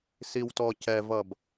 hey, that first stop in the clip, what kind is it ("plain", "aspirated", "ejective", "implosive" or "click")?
plain